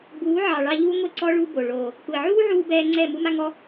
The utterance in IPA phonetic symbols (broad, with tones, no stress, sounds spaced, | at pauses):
b uː˨˦ ʕ ɑ˨ ɭ ɑ˧ ʎ uː˦ ŋʷ e˦ ǀ ɔ˦ ɭ u˦ b o˨ ɭ oː˨ | kʷ e˨ ʕ uː˦ ʕ uː˧ b ɛː˧ ŋ͡ǀ ɛː˦˨ m u˦ m a˦ ŋ ɔ˦